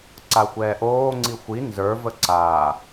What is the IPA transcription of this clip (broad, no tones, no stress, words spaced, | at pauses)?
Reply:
ǀaxʷɛːʔoːŋ͡ǀi xʷi nzə˞və ǀa